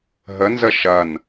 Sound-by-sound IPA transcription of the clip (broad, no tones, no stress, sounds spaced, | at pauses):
ɦ ə n z ə ʃ ɐ n